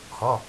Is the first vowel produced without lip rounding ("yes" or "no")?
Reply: yes